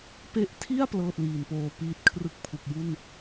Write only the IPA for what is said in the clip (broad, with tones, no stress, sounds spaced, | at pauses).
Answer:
p e˦˥ ʔ tʰ i˥˩ a̯ p l ɤː˥˩ t̚ l iː˨˩ n p oː˧ p iː˦˥ t̚ kʰ r ɯ˦˥ k̚ pʰ u˨˩ k̚ j u˥˩ n